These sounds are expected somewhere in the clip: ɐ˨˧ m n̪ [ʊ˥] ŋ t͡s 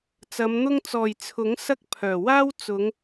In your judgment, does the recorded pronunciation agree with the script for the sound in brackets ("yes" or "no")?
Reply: yes